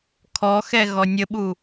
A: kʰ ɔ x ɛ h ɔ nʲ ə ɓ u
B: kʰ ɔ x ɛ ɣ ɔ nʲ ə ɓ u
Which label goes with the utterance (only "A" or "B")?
B